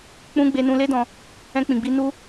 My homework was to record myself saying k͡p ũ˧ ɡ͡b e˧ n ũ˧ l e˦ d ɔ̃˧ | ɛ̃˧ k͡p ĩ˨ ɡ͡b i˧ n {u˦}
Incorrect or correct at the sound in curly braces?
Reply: correct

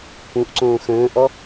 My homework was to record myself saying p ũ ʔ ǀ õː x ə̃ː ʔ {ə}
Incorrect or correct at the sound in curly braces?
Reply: incorrect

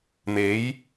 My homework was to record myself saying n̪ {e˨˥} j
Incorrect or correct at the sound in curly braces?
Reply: incorrect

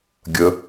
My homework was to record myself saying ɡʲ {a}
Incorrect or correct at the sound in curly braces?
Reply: incorrect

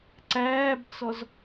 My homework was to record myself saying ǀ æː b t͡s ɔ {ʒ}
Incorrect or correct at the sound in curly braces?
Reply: incorrect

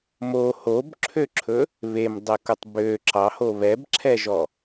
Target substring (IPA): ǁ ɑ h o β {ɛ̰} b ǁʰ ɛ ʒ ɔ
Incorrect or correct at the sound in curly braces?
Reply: incorrect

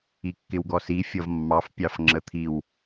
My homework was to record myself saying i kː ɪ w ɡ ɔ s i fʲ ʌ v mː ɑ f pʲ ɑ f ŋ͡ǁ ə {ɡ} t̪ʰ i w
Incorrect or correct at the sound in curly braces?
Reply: incorrect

